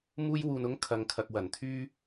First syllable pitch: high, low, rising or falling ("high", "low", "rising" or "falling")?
high